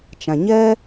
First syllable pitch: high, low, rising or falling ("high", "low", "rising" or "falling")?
low